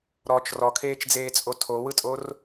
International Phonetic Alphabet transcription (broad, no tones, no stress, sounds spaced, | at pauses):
ɾ ɔ t͡ʃ r ɔ kʰ eː t͡ʃ d͡z eː t͡sʼ o tʰ o w ɯ tʼ o r